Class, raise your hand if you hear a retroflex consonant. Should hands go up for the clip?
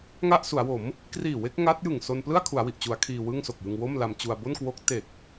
no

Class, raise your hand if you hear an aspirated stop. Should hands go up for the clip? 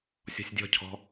yes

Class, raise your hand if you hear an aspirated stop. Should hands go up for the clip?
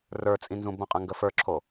yes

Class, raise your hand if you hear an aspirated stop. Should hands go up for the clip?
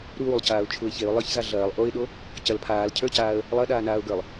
yes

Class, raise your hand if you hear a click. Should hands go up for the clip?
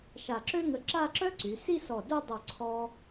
yes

